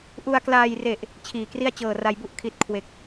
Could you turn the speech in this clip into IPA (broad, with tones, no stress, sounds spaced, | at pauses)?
ʔ u˧ a̯ k l aː˧ j r e˨˩ ʔ | t͡ɕʰ iː˨˩ k r i˥˩ a̯ t͡ɕ ɤː˨˩ r a˧ j b u˥˩ ʔ kʰ i˨˩ t̚ kʰ w e˨˩ k̚